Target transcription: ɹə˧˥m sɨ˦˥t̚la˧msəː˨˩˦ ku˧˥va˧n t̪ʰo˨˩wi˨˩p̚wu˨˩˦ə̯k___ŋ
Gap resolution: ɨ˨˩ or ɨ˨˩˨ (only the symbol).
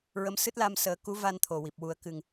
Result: ɨ˨˩